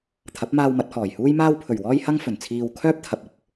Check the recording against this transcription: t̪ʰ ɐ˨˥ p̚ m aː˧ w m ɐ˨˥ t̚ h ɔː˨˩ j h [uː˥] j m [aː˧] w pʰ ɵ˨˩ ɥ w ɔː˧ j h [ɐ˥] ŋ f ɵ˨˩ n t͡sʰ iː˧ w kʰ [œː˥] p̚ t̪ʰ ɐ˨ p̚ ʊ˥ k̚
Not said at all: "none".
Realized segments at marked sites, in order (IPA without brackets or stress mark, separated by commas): uː˥, aː˧, ɐ˥, œː˥